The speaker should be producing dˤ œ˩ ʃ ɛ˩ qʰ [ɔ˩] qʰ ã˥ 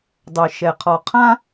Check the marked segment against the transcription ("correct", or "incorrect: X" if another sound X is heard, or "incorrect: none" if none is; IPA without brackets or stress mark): correct